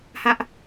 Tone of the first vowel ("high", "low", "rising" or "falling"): high